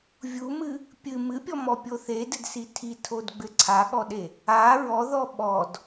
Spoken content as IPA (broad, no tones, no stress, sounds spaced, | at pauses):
vʲ u m ɨ | pʲ ɨ m ɨ pʲ ɔ m ɔ pʲ o θ e d ɘ d s i tʰ i tʰ o d ɡ͡b ɘ ǀʰ a ɠ ɔ ɗ e | a ɹ ɔ ð ɔ ɓ ɔ d